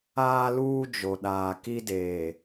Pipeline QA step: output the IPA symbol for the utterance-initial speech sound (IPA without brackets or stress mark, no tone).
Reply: aː